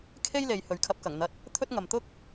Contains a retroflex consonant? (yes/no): no